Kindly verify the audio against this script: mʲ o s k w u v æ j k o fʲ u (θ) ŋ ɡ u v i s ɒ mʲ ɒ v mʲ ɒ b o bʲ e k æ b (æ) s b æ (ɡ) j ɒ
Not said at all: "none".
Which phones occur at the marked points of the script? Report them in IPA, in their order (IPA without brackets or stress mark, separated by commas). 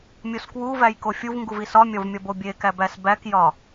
v, æ, k